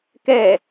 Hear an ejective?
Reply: no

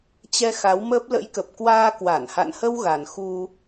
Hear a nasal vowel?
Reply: no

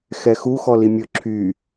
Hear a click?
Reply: yes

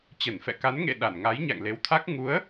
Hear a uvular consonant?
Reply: no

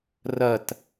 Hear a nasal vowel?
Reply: no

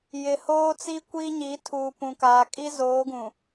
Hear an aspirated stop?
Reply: yes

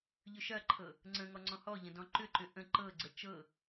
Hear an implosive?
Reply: no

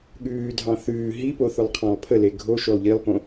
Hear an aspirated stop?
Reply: yes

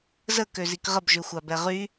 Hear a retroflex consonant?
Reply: no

